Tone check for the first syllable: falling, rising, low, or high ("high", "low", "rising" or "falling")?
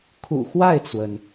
low